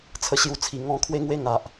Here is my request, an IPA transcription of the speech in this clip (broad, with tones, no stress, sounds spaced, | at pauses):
t͡sʰ ə˦ ɕ j u˦ t͡sʰ i˧ ŋ ɔ̃˥˧ kʰ w e˦ ŋ w e˦ ŋ a˨ ʔ